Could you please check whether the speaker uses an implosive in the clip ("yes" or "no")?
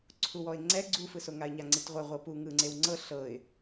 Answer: no